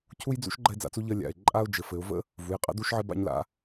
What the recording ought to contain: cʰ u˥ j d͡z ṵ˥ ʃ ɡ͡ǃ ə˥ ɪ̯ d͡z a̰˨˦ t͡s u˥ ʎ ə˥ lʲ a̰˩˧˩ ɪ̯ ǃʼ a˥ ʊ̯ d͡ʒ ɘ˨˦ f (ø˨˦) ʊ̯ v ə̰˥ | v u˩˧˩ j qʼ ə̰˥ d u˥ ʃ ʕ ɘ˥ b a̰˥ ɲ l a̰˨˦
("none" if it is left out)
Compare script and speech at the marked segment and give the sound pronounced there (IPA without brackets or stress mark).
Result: ɘ˨˦